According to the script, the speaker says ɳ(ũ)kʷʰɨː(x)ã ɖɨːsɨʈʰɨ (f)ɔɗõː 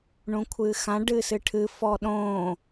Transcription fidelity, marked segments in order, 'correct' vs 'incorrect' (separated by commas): correct, correct, correct